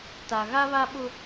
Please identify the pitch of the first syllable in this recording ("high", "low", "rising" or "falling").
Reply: low